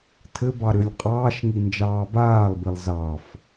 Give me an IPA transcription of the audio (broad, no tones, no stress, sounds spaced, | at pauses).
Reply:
tʰ ɘ b ɑ ɾ ʏ lʲ qʼ ɑː ʃ ŋ i n d͡ʒ ɑː b aː lˠ b i lˠ z ɑ f